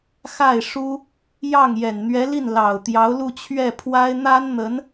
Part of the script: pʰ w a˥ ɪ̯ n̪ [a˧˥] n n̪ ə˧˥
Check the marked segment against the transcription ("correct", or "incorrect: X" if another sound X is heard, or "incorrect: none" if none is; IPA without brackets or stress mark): incorrect: a˥